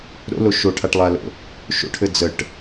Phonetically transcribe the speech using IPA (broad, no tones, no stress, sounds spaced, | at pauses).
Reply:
ɾ o̰ l o ʃ o ʈʰ a ʈ lˠ a l o̰ | ʃ o̰ ʈʰ ɘ d͡z ə ʈ